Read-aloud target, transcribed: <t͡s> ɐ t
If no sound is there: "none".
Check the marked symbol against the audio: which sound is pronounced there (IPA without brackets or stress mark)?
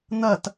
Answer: n̪